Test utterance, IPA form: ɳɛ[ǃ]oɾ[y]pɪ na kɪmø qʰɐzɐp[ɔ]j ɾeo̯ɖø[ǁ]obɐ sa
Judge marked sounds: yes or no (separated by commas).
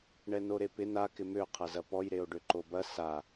no, no, yes, no